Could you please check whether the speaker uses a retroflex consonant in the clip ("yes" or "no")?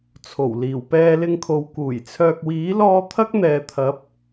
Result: no